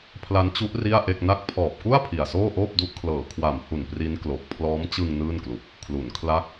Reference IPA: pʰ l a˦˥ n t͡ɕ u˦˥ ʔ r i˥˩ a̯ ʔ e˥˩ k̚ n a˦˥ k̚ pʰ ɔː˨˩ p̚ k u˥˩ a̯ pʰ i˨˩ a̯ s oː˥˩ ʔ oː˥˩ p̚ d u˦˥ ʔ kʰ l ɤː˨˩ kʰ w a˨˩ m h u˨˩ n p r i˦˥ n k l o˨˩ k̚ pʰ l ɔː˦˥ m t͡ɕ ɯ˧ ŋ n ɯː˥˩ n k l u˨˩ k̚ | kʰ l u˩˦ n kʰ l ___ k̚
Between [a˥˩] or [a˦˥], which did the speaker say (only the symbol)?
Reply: a˦˥